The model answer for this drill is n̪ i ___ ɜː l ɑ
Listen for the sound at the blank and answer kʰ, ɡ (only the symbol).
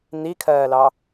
kʰ